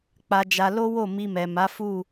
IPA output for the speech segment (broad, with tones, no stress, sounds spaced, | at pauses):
k͡p a˧ d͡ʒ a˧ l o˦ w o˦˨ m i˧ m ɛ˨ m a˨˦ f u˦˨